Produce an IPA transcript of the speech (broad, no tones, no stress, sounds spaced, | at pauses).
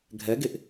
ɡʱ ɛ ɡ e ʔ